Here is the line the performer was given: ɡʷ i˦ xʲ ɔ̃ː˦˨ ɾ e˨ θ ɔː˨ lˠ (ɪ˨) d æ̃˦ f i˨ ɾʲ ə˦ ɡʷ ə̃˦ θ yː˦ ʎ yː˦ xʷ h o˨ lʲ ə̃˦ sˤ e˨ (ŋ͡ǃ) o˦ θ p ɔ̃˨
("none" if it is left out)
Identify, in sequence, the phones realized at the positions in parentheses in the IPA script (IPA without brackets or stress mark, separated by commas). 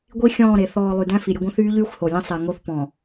y˨, ŋ